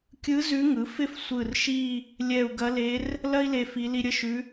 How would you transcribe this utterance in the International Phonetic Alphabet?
kʲ ɯ˧˥ z ʉ˧˥ ŋ ɯ˩˥ f ɪ˥ f sʷ ɯ˧˩ r ʃ i˥˧ | lʲ ɛ˧˩ u̯ ɡ ɐ˧˥ l e˧˥ r | l ɐ˥ i̯ l e˧˩ f i˧˥ l i˥ ɾʲ ə˥˧ ʃ ʉ˧˥

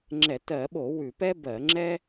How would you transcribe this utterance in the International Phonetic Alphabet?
ŋ͡ǁ ɛ˧˩˧ t ɜ˧˩˧ ɓ o˧˩˧ w ʉ˧˩˧ p ɛ˥ b ɜ˧˩˧ ŋ͡ǁ ɛ˥

